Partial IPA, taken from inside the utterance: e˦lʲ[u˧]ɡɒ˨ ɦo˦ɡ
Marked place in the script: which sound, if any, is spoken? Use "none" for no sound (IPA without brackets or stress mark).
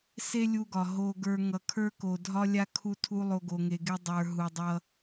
u˧